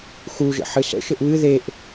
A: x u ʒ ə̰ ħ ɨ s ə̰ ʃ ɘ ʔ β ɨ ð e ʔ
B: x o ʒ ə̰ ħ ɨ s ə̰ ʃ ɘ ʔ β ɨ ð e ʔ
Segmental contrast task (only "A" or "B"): A